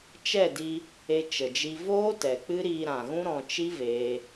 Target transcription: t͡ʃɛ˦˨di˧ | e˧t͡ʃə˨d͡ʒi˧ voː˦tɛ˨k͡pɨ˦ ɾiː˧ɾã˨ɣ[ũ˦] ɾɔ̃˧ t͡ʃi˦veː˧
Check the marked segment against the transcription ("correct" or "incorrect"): correct